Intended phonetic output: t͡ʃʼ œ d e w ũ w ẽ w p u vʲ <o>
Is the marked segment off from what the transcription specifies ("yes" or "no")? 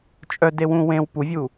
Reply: yes